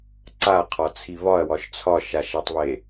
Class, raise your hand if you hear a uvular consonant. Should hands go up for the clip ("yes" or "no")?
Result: yes